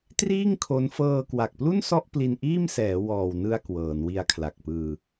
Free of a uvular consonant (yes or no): yes